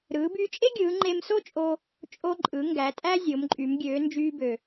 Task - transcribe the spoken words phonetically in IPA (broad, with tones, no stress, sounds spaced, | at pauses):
ɾ ɯː˩˧ b yː˧ t͡ʃʼ e˥ ɡʲ ɯː˩˧ ŋ͡ǃ e˧ m s o˥ t͡ʃʼ o˧ | t͡ʃʼ o˧ ǃʼ ɯ˩˧ ŋ ɡ æ˩˧ tʼ æ˥ zʲ o˩˧ m ǃʼ y˩˧ m ɡʲ øː˩˧ n d͡ʒ yː˧ b ø˩